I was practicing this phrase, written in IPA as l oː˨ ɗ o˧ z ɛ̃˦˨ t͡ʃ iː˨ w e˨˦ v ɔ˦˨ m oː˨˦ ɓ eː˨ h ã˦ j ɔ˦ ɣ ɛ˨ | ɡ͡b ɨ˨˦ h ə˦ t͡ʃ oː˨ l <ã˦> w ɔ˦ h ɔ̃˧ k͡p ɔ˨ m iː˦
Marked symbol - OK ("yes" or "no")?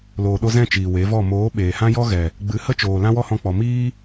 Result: yes